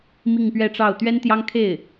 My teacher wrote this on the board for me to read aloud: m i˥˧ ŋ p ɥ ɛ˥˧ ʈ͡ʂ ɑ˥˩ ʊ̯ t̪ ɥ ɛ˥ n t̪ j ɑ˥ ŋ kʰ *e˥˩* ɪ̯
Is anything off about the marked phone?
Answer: no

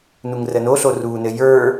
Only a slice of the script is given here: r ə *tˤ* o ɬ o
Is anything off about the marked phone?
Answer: yes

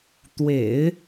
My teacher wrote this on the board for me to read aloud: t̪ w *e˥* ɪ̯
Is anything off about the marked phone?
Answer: yes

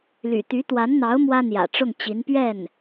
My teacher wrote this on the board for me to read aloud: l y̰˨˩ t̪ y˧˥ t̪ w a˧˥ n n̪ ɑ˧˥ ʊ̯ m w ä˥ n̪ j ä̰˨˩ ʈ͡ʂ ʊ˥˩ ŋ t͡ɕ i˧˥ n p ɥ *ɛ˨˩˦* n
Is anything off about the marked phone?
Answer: yes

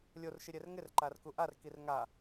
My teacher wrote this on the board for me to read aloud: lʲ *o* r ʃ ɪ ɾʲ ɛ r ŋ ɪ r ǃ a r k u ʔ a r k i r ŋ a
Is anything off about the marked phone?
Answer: no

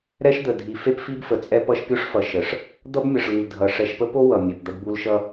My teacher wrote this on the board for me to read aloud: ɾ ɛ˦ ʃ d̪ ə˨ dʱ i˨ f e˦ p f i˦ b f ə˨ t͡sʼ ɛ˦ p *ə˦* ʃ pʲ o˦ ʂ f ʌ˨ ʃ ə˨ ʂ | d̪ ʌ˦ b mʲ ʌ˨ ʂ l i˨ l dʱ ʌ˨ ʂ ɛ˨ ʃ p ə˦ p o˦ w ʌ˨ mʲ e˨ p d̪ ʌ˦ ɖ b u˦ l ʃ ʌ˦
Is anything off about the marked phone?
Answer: yes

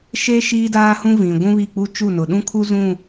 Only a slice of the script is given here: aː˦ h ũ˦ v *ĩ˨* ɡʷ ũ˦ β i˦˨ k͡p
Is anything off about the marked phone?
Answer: no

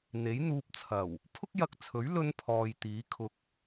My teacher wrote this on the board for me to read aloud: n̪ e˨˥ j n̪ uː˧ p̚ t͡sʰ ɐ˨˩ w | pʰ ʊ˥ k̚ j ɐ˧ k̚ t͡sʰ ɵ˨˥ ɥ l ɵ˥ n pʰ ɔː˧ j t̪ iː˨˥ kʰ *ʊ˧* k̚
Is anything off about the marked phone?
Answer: no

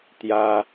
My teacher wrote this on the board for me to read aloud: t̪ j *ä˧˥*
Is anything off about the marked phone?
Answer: yes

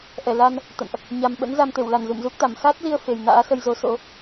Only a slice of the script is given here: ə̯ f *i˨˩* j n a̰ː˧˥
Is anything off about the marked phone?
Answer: yes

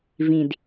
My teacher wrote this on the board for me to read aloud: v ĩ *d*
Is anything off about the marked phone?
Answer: no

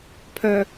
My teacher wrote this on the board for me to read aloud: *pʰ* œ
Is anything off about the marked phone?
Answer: no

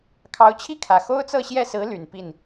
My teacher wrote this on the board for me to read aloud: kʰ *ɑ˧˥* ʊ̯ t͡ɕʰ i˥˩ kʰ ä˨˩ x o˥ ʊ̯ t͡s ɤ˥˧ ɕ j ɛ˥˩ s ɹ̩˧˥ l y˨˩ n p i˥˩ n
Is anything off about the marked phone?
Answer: no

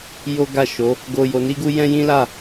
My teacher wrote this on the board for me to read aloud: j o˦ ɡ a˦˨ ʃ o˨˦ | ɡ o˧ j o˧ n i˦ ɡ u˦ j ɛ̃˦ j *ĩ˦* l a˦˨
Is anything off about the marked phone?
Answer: no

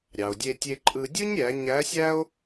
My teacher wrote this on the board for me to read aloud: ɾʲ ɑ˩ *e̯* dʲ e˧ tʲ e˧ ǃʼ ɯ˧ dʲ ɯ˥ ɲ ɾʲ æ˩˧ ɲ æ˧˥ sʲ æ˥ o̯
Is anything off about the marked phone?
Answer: yes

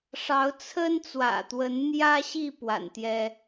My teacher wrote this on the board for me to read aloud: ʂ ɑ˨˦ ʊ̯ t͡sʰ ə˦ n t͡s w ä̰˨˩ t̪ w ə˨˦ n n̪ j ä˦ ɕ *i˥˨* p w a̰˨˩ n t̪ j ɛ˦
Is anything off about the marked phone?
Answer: no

